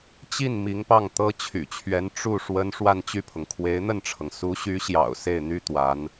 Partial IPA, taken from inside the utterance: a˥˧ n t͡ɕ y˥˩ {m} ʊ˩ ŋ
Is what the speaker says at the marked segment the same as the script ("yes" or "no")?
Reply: no